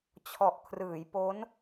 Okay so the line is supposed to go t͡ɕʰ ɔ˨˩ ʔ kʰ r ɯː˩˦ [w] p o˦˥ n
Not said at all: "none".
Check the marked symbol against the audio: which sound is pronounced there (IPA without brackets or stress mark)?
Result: j